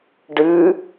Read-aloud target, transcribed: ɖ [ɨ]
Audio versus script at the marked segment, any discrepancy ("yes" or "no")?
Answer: no